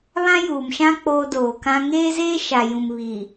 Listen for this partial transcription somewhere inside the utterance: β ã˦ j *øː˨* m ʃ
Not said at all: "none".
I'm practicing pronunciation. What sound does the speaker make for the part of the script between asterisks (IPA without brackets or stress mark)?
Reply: uː˨